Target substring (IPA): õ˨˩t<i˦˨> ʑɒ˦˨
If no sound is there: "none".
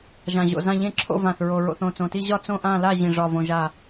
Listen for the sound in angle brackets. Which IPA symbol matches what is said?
i˦˨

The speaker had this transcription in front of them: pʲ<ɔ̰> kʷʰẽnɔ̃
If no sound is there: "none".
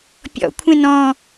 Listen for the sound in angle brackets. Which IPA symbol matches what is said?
ɔ̰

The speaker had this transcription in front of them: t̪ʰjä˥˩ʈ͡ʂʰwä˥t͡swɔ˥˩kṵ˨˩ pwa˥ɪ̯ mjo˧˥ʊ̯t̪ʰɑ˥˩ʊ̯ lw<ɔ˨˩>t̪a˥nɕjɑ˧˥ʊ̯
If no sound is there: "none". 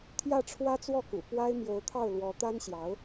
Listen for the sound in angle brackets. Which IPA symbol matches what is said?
ɔ˧˥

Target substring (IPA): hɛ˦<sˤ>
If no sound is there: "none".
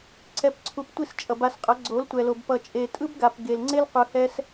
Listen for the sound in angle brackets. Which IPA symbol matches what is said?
s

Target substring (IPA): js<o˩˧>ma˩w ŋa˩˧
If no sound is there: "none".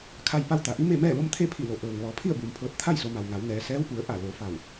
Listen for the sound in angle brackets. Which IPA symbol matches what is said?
o˩˧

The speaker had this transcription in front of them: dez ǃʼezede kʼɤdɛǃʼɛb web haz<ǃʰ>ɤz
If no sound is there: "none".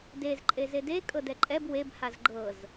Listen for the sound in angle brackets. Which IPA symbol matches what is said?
ɡ͡ǃ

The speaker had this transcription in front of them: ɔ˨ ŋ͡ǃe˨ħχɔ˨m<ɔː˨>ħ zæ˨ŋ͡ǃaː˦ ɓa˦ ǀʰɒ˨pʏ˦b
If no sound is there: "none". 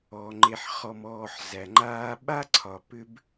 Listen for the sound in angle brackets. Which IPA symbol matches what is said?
ɔː˨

